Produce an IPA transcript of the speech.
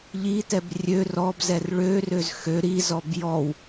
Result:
ʎitɛb rʲø rɔbzɛr ɭørøz xø ɾizɔb jɔw

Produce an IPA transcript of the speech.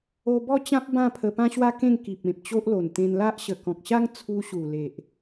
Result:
o˧ bɔ˥˧t͡ɕã˦p̚ bã˥˧pʰə˧ pã˦ɕwa˦kẽ˥˧ŋ ki˨p̚ẽ˨p̚t͡ɕo˦ʔlo˨˩n t̪ẽ˧nla˦ʔ ɕə˨˩kɔ̃˨k̚ɕa˦ŋ t͡sʰu˧ɕu˨˩le˨ʔ

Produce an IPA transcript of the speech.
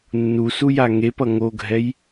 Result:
nːusuja ŋepʌ ŋoɡʱɛj

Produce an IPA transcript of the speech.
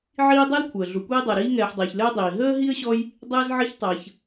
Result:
ʕiː˦dˤɜ˥lkʷʰəː˩ ɮu˨kʷiː˥dˤɛ˨ɾiː˥ ŋɛː˨ħdˤɘː˩ç lɘː˥dˤiː˩ ɦəː˥ɦi˥ə̯ɕɔ˦j | dˤɘː˦zʕə˦ç tˤəː˨ç

